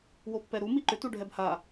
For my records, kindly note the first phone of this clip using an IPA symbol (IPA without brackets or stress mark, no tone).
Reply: w